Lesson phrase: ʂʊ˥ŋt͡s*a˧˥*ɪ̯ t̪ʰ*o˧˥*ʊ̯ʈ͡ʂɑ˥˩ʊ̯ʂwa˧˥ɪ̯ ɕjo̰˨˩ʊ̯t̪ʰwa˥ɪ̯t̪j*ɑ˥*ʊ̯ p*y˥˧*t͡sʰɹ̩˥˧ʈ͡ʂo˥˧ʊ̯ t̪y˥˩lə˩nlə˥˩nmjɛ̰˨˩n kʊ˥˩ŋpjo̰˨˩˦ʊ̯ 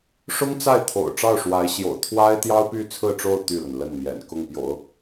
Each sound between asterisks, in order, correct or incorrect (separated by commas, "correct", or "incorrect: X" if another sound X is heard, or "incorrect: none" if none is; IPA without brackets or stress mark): incorrect: a˥˩, incorrect: o̰˨˩, correct, correct